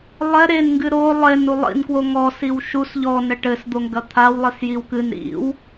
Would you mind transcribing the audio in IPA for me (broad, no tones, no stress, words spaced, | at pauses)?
lˠɛ ɾenŋɡɨ ɾo lˠenu lˠḭnkwo ŋɔsiw ʃus ʎɔnɛ ʈɘsd̪oŋɡɐ t̪ʰawlˠisjiw kɨn ɾḭw